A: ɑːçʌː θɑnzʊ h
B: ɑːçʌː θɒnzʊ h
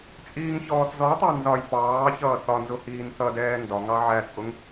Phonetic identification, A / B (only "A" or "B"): B